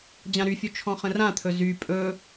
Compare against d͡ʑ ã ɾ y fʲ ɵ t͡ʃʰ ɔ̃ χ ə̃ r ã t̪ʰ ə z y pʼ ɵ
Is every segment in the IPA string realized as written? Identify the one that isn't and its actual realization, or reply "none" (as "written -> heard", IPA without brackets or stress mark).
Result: ə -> ɵ